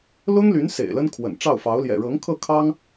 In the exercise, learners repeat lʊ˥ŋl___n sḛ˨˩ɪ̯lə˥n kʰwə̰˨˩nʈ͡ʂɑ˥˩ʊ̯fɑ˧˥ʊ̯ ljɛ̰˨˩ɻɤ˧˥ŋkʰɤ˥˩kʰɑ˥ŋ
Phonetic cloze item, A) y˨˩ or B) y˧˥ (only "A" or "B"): B